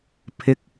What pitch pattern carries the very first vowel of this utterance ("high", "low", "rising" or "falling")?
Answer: low